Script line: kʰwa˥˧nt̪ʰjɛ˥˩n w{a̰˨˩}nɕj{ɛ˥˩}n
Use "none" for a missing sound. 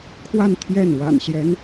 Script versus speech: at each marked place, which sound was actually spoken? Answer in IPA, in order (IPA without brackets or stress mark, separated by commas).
a̰˨˩, ɛ˧˥